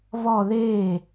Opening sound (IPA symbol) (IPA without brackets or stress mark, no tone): v